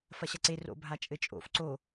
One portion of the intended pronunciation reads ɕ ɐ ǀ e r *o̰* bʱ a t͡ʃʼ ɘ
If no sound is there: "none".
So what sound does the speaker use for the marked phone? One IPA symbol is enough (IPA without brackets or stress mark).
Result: o̰